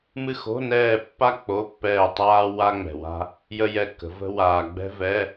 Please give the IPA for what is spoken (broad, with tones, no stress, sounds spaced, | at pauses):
m ɨ˦˨ x o̤˧˥˧ n ɛː˦˨ pː a˥ k͡p o˧˥˧ pː ɛː˦˨ tˤ aː˥ w a˥ ŋ͡m ɛ̤˨ w a̤˥ | j ə˥ j ɛ˦˨ kː ə̤˨˦ v ə̤˥ w aː˨ ɡ͡b ɛ̤˥ v ɛ˧˥˧